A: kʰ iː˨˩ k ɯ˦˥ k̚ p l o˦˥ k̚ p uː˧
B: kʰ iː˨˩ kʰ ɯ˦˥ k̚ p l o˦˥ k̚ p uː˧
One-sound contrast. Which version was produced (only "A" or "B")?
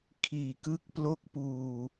A